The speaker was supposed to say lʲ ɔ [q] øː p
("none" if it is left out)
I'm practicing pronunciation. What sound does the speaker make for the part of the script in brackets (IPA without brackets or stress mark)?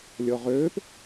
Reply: ʁ